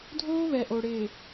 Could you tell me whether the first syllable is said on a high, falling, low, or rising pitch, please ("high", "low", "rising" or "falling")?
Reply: high